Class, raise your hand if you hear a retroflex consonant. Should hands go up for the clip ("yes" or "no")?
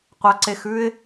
no